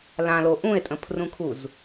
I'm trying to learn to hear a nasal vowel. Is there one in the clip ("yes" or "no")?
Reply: yes